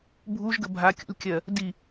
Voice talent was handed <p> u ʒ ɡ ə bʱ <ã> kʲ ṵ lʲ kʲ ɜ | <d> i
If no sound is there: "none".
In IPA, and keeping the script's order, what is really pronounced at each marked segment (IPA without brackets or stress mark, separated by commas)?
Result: bʱ, a, d